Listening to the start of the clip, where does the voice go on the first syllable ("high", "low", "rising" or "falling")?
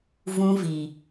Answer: high